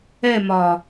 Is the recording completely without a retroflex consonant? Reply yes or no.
yes